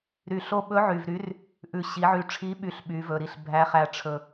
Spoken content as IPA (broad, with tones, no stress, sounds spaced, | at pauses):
ɾ y˨˩ ɬ o˧ ɓ ɵ˨˥ ʕ y˨˩ v ɾ y˨˥ r | ʔ ʉ˨˩ ɕ i˩˧ ʕ y˨˩ ʈ͡ʂʰ i˨˥ ɓ y˨˥ ɬ ɓ y˩˧ v ɵ˨˩ ɾ i˧ ɬ bʱ æ˨˥ χ æ˧ ʈ͡ʂʰ ɵ˧